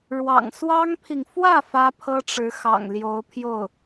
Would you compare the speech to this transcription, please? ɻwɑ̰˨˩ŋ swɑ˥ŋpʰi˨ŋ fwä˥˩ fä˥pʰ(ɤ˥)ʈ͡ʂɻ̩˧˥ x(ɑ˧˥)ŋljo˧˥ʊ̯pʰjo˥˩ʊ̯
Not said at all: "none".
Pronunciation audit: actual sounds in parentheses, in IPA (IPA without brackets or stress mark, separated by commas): ɤ˥, ɑ̰˨˩